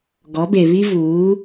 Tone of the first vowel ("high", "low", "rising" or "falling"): rising